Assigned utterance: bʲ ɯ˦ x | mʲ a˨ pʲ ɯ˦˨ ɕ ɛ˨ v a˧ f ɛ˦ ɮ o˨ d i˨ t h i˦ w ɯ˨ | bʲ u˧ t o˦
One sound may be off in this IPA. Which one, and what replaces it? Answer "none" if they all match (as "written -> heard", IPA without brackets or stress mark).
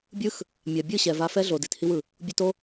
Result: pʲ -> bʲ